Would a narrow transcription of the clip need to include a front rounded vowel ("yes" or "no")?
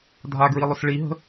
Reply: no